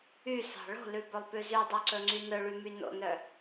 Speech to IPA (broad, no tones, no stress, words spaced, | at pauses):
ysɑ̤ ɭo̤lʉbɵlˠpʉ zydˤœǀɵŋ͡ǀy nɵɭymy no̰nœ